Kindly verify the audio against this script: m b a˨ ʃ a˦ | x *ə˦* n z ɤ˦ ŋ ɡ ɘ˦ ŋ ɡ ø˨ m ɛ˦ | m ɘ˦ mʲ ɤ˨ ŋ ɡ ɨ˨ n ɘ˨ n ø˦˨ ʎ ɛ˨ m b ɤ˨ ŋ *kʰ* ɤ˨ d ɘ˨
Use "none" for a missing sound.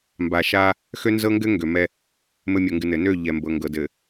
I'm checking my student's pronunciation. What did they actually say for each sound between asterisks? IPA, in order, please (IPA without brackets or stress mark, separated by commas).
ø˦, ɡ